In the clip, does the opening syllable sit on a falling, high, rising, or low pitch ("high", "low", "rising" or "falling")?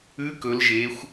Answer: rising